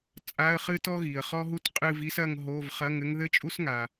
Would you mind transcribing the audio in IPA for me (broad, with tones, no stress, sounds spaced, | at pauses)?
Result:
t͡sʼ a˧˥˧ ə̯ χ ɨ˥ t ɔ˥ ɣ i˩ ə̯ χ ɔ˥ ɦ u˥ t qʼ ɨ˥˧ v i˥ s ɐ˥˧ ŋ ɦ o˧˥˧ v χ ɐ˧˥˧ ŋ ɘ˥ ŋ ð ɘ˥ t͡ʃʼ u˥ s ŋ a˩